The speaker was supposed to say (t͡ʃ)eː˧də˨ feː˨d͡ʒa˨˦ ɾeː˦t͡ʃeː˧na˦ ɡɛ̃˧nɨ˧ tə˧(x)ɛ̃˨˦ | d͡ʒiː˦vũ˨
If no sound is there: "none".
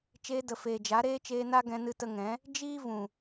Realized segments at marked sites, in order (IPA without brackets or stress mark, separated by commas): t͡ʃ, ŋ